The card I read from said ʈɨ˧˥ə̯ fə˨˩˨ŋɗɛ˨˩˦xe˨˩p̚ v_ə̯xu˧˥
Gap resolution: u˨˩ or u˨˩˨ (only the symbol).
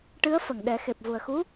u˨˩